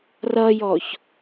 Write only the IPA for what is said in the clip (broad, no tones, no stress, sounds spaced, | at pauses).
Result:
r ʌ j ɔ ç